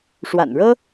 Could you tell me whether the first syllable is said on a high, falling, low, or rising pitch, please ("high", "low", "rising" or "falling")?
low